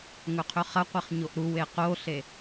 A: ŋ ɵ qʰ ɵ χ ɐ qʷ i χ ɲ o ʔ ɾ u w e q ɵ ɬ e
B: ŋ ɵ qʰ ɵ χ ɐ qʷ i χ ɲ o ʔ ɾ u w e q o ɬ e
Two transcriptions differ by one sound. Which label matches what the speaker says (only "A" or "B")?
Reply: B